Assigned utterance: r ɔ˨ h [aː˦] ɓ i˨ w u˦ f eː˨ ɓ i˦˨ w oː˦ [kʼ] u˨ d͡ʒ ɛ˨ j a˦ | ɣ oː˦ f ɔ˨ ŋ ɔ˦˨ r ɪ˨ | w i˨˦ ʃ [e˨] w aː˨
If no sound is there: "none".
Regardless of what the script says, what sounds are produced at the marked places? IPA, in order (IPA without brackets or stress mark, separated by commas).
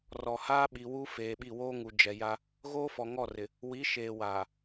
aː˦, ŋ, eː˨